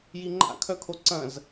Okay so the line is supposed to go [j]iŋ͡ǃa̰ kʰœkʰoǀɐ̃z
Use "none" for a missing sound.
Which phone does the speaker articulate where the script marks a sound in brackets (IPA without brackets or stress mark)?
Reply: j